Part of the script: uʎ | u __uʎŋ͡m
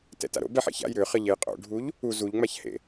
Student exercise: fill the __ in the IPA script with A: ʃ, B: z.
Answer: B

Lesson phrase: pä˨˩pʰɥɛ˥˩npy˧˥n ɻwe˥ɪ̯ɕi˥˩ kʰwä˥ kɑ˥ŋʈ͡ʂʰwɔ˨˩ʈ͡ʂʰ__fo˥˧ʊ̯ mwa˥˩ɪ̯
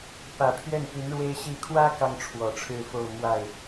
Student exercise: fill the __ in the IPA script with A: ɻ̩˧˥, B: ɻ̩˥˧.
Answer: B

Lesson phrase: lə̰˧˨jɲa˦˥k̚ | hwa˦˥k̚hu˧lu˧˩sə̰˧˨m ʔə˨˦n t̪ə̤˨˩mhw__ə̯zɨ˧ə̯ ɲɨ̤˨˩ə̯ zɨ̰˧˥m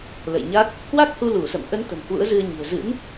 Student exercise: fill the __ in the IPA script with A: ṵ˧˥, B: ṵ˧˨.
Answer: A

